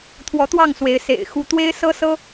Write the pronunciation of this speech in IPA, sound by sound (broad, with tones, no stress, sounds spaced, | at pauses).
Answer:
t̪ʰ w ɔ˨˦ t̪ w ɑ˥˨ ŋ s w e˨˦ ɪ̯ s ḛ˨˩ ɪ̯ x u˨˦ t̪ w e˦ ɪ̯ s ɤ˦ s ɤ˦